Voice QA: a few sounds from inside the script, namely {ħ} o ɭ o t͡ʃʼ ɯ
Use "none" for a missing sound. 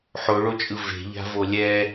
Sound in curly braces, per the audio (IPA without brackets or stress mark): ħ